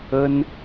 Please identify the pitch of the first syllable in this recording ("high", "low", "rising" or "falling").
high